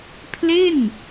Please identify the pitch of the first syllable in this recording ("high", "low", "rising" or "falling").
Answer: falling